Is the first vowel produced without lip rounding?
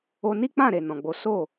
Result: no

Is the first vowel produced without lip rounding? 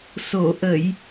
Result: no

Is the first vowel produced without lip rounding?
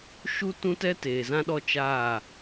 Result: no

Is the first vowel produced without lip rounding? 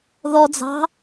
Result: no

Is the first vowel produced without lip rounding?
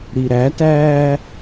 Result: yes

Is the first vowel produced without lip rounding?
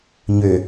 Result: no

